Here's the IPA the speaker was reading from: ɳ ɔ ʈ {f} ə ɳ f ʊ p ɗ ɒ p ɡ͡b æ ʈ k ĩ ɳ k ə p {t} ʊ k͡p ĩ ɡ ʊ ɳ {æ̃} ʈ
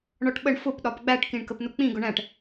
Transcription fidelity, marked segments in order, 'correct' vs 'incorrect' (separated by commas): incorrect, incorrect, correct